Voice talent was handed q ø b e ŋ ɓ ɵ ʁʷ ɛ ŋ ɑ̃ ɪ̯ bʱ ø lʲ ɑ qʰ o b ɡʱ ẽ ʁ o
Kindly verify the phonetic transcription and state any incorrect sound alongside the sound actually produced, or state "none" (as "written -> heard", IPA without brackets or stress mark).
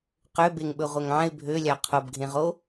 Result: none